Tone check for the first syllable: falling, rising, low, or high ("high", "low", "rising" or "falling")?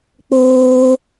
high